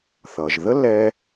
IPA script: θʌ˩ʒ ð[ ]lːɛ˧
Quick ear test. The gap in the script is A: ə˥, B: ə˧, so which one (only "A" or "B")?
A